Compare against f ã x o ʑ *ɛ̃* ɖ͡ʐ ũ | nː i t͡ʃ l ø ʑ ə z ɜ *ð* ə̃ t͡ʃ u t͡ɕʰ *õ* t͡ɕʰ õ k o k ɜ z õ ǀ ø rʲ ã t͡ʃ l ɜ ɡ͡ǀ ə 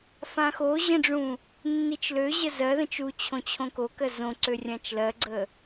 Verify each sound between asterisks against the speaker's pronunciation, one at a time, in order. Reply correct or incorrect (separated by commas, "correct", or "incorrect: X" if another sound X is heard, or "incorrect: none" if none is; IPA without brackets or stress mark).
incorrect: ə̃, correct, correct